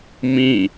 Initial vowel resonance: nasal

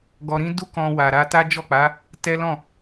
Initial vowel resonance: oral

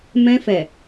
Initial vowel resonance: nasal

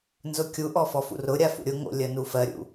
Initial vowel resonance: oral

